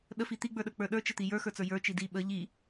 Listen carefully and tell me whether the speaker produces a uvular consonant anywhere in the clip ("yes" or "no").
no